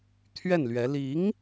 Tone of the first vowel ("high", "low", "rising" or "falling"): falling